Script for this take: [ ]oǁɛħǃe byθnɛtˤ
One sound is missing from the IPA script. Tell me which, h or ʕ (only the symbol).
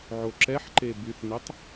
ʕ